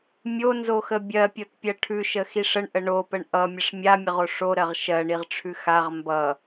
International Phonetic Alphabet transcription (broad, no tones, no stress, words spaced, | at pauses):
mʲonzoxə bʲɜpʲotpʲɜ ʈʰʉʃəxiʂ əɳʔə ɳopəɳ ʔʌmʲəʂ mʲamʲəʁo ʂoɾɜʁ ʃɜɳiʁʈ͡ʂʰʉ xaʁ mbʌ